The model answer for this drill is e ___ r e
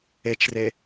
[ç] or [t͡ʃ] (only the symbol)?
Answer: t͡ʃ